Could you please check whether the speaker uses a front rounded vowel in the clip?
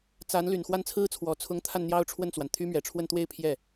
yes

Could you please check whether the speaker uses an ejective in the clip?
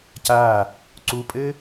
yes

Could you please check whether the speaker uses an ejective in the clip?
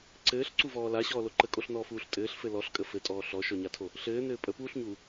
yes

